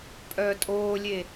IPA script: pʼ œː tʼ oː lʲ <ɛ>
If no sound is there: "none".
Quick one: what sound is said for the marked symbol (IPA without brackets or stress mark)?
e